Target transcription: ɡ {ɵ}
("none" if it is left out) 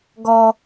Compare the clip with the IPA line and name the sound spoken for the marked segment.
ɔ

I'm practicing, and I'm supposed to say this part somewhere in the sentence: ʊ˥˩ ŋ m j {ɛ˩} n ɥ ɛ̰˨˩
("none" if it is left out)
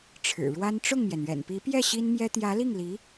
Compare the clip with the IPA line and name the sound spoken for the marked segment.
ɛ˩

